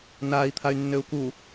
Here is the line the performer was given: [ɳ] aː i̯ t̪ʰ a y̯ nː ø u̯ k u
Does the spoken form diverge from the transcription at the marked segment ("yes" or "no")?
yes